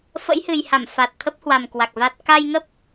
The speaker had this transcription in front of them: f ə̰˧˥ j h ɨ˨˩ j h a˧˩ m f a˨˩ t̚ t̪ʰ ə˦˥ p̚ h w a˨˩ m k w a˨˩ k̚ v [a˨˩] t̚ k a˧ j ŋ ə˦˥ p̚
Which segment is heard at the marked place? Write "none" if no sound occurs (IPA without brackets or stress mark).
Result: a˦˥